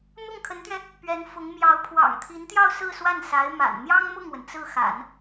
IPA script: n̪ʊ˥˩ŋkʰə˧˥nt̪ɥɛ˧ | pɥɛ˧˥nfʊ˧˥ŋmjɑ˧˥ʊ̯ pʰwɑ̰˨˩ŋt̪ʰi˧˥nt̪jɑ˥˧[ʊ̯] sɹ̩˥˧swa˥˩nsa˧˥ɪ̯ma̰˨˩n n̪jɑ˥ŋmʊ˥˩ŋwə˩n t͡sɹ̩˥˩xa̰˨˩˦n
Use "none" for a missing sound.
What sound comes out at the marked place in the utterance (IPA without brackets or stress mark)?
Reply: ʊ̯